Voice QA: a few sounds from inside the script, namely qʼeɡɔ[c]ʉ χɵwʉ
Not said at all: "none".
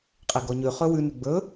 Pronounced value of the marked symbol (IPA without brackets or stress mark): ɲ